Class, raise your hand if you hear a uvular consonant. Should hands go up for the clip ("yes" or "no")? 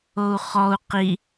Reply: yes